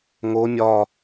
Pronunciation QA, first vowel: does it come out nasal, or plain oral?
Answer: oral